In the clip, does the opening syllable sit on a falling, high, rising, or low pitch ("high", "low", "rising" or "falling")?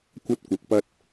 high